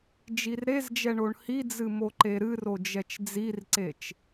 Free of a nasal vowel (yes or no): yes